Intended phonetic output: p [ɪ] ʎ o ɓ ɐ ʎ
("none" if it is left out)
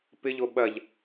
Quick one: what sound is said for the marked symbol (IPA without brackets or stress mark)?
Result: ɪ